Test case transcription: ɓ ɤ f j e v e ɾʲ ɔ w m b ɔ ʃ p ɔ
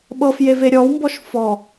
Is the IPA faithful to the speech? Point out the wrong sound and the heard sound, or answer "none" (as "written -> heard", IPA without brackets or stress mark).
p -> f